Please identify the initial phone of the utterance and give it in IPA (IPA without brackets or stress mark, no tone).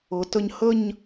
ɤ